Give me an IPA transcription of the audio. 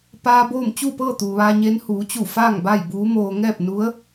p aː˧ b oː˥˨ m t͡ɕ uː˥˨ p ɤː˥˨ t̪ uː˩ ʋ aː˧ ɲ eː˧˥ n h uː˩˧ t͡ɕ u˧˩ f aː˥˨ ŋ b a˥˨ j b uː˧˥ m oː˧ ŋ ɛː˥˨ p̚ n u˧˥ ə̯

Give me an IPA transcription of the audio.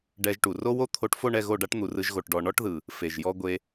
ɖ ɛ˧ ʒ ʈ u˨ r o˦ w o˦ t̪ʰ o˧ ʈ f o˦˨ ɳ ɛ˦˨ ɣ o˦˨ ɖ a˦ ʈ n̪ u˨ r ɯ˧ ʒ ɣ o˨ ʈ ɖ ɔ˨ ɳ ɔ˦ ʈ ð ɯ˨ | f e˨ ʒ j ɔ˦ ɡʷ e˧

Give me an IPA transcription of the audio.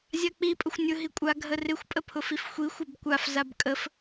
zʲ a k͡p i pʼ ʊ xʷ nʲ ʊ ɦ i kʷʼ a ɡʱ ə r ɪ xʷ pʼ ə pʰ ʊ f i f xʷ i xʷ ɪ b kʷ a f z a b kʼ ə f

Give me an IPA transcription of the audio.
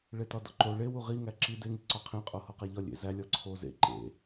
ɭ e t ɒ d ɒ ǃ o ɭ e w u ʁ i ŋ æ ǁ i d e ŋ i ǀ ɒ qʰ ĩ qʼ o h ɒ q æ ʎ ɒ lʲ ḛ z æ lʲ ɒ ǀʰ o z ḛ ǃ ḛ

